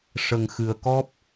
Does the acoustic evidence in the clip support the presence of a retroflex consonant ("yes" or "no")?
yes